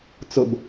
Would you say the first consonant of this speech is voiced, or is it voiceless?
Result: voiceless